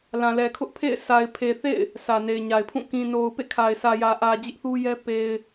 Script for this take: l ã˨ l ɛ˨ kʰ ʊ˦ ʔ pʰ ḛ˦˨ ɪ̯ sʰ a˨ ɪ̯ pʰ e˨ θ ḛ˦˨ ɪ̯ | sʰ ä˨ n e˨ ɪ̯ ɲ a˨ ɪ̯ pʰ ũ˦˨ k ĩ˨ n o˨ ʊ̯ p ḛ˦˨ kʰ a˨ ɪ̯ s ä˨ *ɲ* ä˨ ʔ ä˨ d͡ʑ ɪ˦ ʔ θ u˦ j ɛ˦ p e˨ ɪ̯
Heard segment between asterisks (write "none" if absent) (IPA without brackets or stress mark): j